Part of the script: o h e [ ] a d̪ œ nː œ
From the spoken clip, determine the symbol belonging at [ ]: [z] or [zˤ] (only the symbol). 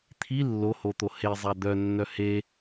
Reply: zˤ